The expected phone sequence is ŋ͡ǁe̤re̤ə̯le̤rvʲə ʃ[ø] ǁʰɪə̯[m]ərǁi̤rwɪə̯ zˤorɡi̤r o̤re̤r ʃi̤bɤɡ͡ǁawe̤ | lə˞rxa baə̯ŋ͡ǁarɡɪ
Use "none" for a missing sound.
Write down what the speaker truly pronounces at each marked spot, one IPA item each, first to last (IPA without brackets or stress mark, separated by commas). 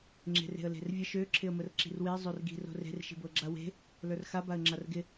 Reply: ø, m